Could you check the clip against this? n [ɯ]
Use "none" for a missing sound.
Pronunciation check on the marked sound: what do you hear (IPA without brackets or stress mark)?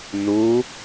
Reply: u